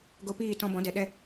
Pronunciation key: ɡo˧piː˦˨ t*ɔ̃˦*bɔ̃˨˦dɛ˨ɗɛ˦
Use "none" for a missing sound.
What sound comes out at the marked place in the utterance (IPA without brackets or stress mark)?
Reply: ɔ̃˧